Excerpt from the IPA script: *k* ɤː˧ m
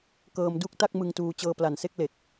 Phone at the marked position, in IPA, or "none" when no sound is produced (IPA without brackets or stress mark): k